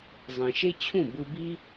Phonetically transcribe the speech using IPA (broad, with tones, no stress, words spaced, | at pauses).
zˤĩ˨ʃe˦t͡ɕʰũ˦˨ bɯ˧bi˦